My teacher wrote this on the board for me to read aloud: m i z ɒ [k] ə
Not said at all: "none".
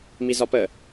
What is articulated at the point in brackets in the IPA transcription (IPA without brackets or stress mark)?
p